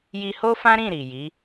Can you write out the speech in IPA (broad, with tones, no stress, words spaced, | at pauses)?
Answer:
ji˧ho˦fã˦ɾĩ˦˨ ɾi˨ji˨˦